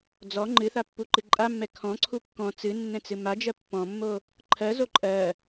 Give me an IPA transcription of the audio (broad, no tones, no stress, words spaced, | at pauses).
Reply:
d͡zɔ ŋ͡ǃɨθapːuǃɨ ǃʼamːɛ kʰɔ̃ǀʰu kːɔ̃ t͡sɨnːɛ̃t͡sɨ mad͡ʒɜ pːɔ̃mːo | ǃʰɜzo ǃʼɜ